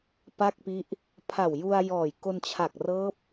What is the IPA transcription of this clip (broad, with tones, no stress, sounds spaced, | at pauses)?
p a˥˩ k̚ p i˦˥ ʔ | pʰ a˨˩ w j u˧ a̯ j ɔː˨˩ j k o˧ n t͡ɕʰ a˨˩ k̚ r ɤː˦˥ p̚